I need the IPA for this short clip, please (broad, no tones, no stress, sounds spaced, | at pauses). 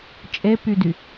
t͡ʃʼ e p y d y